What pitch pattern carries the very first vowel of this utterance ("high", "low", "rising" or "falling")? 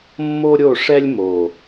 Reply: high